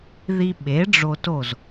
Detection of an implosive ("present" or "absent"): present